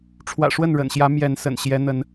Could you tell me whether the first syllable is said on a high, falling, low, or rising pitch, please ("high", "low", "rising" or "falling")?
low